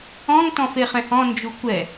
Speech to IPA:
ɔ̃ŋ tɔ̃feχɛ̃hɔ̃ nd͡ʒukʷɛ

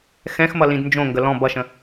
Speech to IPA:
xɛ̃xmʌlĩd nd͡ʒõŋɡə lɔ̃ bʌʃə̃

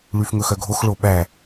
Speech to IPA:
ɭyfŋɵxœɡʱox ɭoɓæ

